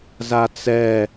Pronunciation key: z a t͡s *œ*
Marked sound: incorrect: ɛ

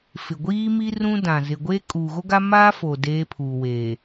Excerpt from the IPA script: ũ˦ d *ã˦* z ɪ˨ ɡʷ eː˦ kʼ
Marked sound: incorrect: ã˨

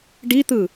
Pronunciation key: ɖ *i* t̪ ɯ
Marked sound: correct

